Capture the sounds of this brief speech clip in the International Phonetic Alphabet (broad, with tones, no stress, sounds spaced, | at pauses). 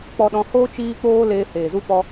k͡p ɔ˧ ɗ ɔ̃˧ h oː˦ t͡ʃ iː˦ k͡p oː˦ l eː˧ h eː˨ z u˦ p ɔ˧